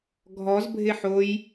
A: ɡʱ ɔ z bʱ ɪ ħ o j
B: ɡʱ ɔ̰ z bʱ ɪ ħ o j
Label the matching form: A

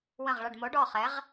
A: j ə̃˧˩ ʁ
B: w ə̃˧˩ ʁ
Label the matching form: B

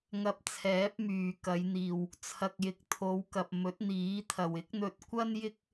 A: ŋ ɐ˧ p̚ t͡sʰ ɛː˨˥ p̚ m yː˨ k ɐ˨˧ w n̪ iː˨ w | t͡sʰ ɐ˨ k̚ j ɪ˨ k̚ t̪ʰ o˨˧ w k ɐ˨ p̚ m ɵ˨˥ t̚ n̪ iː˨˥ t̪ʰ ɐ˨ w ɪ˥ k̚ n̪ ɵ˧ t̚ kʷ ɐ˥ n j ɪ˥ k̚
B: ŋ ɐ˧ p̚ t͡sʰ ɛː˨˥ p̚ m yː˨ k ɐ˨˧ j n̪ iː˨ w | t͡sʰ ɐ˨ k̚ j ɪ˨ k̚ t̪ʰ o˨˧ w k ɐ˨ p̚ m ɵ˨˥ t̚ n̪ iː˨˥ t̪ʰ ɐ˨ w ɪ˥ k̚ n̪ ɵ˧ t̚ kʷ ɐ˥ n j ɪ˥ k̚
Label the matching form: B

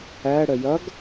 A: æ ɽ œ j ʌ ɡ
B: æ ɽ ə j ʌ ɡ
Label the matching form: B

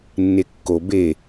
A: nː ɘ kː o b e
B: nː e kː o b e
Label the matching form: B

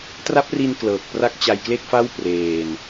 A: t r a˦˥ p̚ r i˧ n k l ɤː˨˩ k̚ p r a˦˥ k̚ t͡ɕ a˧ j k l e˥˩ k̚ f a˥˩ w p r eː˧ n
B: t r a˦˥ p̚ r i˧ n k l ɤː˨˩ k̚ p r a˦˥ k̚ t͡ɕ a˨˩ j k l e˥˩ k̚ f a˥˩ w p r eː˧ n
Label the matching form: A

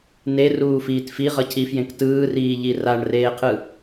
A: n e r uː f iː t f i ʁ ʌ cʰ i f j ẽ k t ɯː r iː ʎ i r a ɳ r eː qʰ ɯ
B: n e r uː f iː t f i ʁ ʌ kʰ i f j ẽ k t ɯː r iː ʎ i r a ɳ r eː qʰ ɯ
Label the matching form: A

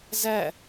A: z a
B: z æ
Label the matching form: B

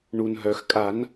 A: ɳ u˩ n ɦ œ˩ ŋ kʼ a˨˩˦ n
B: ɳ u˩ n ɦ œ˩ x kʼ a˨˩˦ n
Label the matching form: B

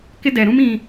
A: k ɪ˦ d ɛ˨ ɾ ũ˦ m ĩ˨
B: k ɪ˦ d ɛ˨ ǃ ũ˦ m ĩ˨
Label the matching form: A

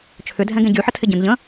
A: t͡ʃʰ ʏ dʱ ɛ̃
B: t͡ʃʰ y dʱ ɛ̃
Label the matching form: A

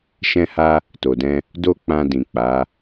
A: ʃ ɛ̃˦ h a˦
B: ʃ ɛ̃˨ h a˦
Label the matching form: A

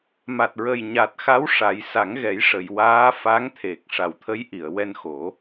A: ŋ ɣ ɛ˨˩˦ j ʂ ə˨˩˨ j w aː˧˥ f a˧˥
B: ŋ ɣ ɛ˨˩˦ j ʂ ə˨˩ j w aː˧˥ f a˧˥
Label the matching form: A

